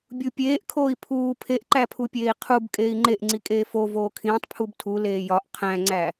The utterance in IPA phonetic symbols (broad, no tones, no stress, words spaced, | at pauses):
bʲupʲeːʔkʰoːi̯ pʰuː pʰeʔǃæpʰupʲeːi̯ qʰub kʼeːi̯ŋ͡ǃeʔŋ͡ǀikʼeː fo voːkʰĩːtˤ pʰubtʰu leːjɒʔ qʰæ̃ŋ͡ǀæ